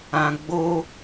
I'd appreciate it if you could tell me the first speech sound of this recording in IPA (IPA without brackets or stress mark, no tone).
ã